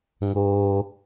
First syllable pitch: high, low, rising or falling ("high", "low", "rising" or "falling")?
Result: high